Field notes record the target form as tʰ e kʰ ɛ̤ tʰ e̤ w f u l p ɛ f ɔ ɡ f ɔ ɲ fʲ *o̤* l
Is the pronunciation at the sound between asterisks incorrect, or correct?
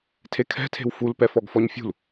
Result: incorrect